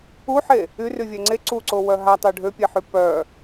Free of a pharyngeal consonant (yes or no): no